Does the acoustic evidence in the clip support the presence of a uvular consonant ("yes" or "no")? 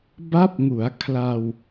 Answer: no